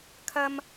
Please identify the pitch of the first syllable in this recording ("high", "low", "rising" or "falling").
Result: high